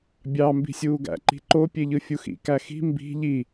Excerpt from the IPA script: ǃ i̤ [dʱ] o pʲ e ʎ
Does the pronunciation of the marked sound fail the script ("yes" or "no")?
yes